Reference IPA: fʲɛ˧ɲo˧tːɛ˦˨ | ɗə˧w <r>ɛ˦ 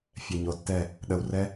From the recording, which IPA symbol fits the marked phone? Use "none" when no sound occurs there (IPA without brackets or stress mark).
r